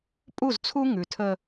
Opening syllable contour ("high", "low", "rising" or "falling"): falling